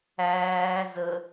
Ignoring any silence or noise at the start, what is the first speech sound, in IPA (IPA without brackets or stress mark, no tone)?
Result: æː